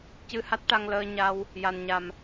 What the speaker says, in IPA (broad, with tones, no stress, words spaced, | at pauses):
cɨ˧ha˦˥t̚ʈa˧ŋ ləː˧ɲa˧w | ja˨˩nɲa˨˩m